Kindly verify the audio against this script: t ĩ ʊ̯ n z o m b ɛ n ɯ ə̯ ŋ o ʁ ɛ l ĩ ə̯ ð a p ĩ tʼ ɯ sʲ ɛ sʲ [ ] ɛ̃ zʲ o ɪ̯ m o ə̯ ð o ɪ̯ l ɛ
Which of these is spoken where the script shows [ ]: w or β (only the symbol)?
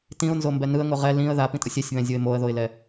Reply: β